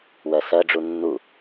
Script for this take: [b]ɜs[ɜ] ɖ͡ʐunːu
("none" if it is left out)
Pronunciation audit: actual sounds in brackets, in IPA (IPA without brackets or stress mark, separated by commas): w, ɜ